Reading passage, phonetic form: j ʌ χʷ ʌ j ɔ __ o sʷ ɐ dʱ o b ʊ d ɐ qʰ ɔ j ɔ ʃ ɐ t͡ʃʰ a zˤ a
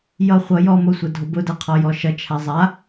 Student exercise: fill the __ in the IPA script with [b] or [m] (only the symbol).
m